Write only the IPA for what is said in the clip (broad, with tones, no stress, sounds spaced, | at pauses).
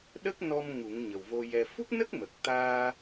ɗ ə˦˥ k̚ n ɔ˧ m ŋ u˨˩˦ ŋ ɲ ə˨˩ w v o˧ j ɛ˧ f u˦˥ k̚ n ə˦˥ k̚ m ə˨˩ k̚ t̪ aː˧